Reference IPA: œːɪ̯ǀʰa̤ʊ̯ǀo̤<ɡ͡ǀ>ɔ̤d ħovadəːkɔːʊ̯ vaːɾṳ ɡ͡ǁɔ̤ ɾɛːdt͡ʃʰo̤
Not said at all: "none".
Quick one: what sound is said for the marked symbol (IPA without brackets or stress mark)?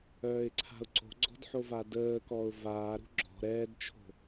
ɡ͡ǀ